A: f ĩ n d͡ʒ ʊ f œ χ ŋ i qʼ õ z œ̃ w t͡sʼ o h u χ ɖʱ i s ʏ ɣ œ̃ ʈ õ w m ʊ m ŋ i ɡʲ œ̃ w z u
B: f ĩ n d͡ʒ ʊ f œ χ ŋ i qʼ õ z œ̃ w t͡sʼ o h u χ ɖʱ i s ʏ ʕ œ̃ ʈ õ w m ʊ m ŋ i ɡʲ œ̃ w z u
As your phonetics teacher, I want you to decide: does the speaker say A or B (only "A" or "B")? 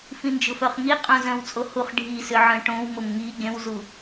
B